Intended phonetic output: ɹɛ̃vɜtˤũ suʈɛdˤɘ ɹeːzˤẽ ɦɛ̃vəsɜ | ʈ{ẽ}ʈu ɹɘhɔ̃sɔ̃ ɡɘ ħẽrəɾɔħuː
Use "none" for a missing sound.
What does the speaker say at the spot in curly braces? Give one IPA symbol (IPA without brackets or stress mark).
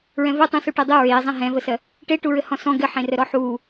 e